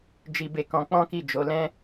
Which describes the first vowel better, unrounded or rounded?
unrounded